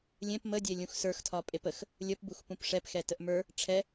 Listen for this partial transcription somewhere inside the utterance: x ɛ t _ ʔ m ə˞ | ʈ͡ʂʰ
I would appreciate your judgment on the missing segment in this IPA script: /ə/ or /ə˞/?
ə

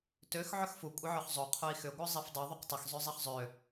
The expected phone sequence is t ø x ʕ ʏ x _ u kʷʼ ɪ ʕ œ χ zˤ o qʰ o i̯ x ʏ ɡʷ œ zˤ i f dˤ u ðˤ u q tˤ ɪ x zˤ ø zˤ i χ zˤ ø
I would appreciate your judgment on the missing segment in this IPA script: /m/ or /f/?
f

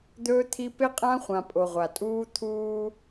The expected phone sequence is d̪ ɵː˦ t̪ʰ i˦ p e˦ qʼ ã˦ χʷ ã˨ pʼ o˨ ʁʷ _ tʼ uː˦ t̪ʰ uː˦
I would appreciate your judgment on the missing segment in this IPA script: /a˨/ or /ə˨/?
a˨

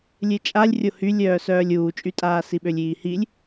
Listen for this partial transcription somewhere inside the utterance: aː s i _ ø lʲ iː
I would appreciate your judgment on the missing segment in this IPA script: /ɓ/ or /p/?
ɓ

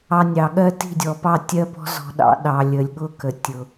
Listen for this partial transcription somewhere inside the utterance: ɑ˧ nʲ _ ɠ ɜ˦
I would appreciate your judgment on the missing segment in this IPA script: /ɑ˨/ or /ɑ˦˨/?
ɑ˨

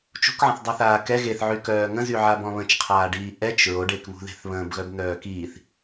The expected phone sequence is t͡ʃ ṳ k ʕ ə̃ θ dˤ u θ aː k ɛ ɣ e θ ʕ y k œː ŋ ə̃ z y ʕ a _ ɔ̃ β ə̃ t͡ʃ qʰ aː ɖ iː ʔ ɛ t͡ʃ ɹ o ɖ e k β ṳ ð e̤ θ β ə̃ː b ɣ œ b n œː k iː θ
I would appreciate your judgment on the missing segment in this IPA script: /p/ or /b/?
b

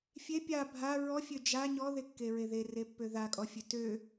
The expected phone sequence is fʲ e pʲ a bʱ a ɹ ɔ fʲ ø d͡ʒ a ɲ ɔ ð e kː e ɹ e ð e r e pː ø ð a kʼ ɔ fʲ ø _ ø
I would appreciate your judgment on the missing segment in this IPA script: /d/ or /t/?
t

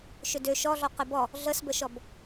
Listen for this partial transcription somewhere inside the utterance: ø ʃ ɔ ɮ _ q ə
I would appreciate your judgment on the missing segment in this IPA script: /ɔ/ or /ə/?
ɔ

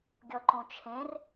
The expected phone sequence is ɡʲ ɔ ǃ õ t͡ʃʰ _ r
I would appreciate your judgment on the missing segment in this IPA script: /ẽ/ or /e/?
ẽ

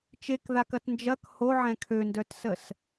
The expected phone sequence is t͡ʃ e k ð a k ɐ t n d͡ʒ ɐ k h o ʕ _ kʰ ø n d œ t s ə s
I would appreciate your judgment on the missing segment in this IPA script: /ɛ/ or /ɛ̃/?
ɛ̃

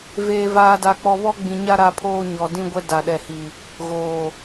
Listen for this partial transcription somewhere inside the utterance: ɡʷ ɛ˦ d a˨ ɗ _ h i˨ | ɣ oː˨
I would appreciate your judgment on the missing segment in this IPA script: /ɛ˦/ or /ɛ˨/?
ɛ˨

